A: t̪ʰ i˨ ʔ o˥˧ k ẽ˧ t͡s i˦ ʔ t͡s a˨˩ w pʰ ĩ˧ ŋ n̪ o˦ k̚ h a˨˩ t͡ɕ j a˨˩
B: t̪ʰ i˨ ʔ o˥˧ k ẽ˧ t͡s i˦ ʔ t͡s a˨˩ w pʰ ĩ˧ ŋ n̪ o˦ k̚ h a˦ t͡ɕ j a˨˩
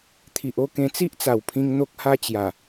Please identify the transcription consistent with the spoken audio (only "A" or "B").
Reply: B